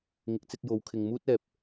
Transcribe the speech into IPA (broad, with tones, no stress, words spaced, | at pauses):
ŋɪ˨˥k̚t͡sɪ˧k̚ jo˨˧wkʰɪ˨ŋ muː˥t̚ɛː˨p̚